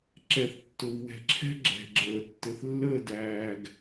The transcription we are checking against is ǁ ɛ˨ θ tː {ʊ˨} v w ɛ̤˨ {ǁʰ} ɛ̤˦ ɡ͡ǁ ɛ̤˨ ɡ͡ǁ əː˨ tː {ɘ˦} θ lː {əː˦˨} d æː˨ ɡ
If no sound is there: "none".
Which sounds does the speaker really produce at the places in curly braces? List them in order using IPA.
ʊ˨, ǁʰ, ɘ˨, əː˦˨

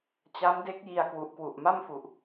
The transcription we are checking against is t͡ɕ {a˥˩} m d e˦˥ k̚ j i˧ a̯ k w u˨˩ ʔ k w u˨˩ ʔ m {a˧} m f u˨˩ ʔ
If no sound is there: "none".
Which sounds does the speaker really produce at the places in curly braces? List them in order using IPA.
a˦˥, a˥˩

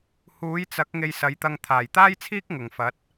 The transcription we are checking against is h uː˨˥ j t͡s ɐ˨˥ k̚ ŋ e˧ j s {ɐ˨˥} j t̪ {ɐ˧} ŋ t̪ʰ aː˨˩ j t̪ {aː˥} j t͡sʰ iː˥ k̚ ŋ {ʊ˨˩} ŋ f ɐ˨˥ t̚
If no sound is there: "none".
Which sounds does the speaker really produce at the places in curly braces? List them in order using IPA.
ɐ˨˥, ɐ˧, aː˥, ʊ˨˩

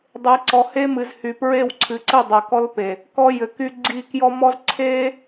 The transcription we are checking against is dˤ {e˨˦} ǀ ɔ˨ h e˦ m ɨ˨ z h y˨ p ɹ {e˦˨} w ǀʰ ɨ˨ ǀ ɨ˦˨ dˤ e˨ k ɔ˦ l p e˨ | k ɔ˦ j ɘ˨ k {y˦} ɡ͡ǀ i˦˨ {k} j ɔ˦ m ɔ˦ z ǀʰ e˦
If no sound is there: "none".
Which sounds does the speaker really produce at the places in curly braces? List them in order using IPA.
e˨˦, e˦˨, y˦, k

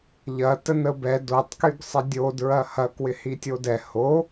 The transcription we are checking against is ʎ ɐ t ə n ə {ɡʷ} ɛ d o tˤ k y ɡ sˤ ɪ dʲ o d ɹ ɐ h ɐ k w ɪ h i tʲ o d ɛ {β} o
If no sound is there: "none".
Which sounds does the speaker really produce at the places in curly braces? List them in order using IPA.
b, h

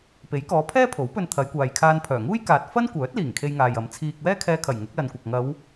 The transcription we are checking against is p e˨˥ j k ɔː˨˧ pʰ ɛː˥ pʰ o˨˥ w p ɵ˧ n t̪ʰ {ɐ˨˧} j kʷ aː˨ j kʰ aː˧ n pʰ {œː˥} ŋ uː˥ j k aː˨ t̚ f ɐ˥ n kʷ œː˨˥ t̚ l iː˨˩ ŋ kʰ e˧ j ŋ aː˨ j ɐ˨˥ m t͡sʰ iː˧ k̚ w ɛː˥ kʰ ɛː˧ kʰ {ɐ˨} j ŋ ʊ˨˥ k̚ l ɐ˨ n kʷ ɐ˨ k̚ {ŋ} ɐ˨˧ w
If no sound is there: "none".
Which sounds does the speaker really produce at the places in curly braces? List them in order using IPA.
ɐ˨˧, œː˨˩, ɐ˨˩, ŋ

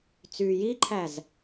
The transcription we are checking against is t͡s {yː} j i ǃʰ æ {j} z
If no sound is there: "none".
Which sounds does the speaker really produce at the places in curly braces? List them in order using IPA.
yː, none

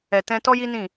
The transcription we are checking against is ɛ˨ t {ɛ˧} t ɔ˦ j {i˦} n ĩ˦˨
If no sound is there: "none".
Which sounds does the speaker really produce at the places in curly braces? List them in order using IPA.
ɛ̃˧, i˦

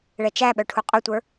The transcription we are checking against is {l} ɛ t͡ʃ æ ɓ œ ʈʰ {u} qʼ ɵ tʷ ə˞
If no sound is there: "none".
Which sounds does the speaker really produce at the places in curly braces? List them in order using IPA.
ɭ, u

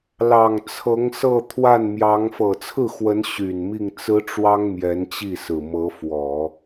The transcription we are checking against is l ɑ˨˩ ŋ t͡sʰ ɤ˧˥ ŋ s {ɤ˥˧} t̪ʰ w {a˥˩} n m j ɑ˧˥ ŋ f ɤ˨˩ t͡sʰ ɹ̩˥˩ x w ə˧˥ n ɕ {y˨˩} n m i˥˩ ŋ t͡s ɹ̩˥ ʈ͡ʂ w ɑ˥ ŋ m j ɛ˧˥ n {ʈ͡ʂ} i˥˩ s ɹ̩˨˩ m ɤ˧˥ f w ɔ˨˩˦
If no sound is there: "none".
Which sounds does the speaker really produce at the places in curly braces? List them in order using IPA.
ɤ˥˧, a˥˩, y˨˩, t͡ɕ

